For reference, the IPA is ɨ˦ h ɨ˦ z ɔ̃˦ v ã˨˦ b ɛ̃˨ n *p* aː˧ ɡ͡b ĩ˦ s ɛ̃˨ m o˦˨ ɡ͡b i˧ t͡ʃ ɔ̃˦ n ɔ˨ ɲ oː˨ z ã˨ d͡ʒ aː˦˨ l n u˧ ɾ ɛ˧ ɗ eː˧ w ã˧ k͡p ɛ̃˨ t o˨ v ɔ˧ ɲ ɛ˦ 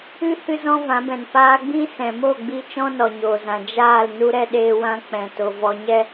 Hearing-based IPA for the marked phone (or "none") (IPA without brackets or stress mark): p